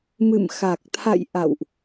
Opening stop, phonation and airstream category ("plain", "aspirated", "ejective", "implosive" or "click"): plain